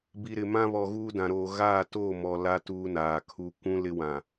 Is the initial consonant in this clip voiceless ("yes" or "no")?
no